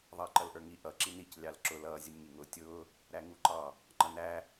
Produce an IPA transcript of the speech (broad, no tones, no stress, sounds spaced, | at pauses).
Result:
ðˤ ʌː ǃ ʌ l ʔ ə˞ ŋ i ʔ ʌ ǁ i n i c lʲ ɑ l ǁ ʊ l ʌː zʲ ə nʲ ŋ i ŋ ʊː tʲ ʊː | ɾ æ ŋ u ǃ ɑ | ŋ͡ǃ ʌ n æ